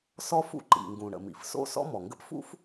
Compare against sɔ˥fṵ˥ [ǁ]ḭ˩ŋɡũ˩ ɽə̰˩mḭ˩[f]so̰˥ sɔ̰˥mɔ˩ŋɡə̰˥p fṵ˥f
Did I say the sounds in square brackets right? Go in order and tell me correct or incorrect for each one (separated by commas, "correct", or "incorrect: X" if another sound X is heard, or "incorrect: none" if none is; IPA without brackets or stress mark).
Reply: incorrect: ǃ, correct